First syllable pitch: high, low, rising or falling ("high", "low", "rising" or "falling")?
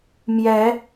rising